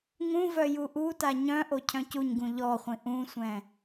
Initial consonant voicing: voiced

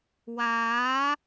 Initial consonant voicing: voiced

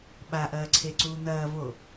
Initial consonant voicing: voiced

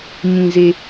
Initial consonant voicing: voiced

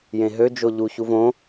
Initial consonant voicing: voiced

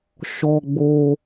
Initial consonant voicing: voiceless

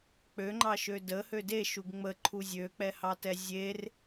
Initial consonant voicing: voiceless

